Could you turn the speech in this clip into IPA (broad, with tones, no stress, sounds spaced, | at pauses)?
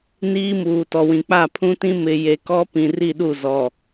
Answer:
n iː˦ m uː˨ t ɔ˨ w ĩ˨ k͡p a˦˨ pʰ ũ˦ t ĩ˦ m ɪ˨ j e˨ k ɔ˦ p ĩ˨ r i˦˨ ɗ u˦˨ z ɔ˨